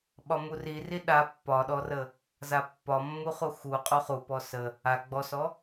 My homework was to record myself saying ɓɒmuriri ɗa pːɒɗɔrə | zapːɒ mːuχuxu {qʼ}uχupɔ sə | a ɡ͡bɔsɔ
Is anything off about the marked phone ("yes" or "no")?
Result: no